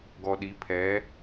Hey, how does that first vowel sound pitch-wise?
low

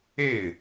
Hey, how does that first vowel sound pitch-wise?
falling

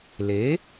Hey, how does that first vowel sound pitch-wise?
rising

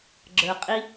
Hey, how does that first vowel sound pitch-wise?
low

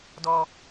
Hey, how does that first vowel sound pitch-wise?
high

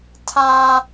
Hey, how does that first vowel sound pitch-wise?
high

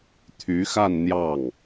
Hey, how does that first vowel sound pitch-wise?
rising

